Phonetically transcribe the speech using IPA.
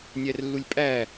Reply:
nʲ æ r lː u lʲ pʼ æ

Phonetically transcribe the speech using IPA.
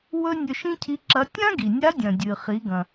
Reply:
w ɵ˧ nʲ ɵ˧ ʃ ĩ˥ cʰ i˧˥ ǁ ɐ˧˥ tʲ ã˥ ɡ i˩ nʲ a˧˥ dʲ ɐ̃˩ dʲ ɨ˩ χ i˩˧ ɡ ɐ̃˩

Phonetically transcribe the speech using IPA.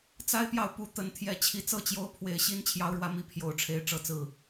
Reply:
t͡s a˦ ɪ̯ p j ɑ˨ ʊ̯ p u˨˦ t̪ ə˨˦ n t̪ʰ j ɛ˨˦ t͡ɕʰ i˨˦ t͡s ɤ˥˨ t͡ɕ j o˦ ʊ̯ pʰ w e˨˦ ɪ̯ ɕ i˦ n t͡ɕʰ j ɑ˦ ʊ̯ ɻ w ä˦ m i˦ pʰ j o˨˦ ʊ̯ ʈ͡ʂʰ e˨˦ ɪ̯ ʈ͡ʂ ɤ˨˦ t͡s ɹ̩˨˩

